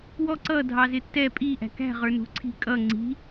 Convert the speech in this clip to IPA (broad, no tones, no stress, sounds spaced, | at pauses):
w ɔ ǀ ʌ dʱ ɑ z ɪ tː ɛ pʼ i ʔ æ̤ k æ̤ ʁ ə˞ n ṳ ǀʰ i̤ kʼ ʌ ŋ͡ǀ i̤